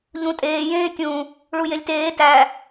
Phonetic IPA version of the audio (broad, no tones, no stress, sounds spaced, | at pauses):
ʎ ũ tʼ eː j ẽː tʲ ũ | ɭ u j e lʲ t eː t æ